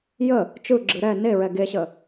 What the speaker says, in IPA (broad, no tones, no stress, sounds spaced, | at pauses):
j ə | t͡ʃ ɯ ɡ͡ǁ ɯ ɾ ɛ n e ɹ ɛ ɡ e ɕ ə